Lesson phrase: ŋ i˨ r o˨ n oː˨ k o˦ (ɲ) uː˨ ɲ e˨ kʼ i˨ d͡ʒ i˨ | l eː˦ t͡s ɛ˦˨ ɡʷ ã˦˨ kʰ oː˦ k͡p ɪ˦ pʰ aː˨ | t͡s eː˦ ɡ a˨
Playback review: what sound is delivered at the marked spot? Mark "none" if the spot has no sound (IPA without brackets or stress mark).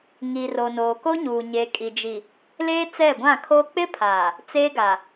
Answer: ɲ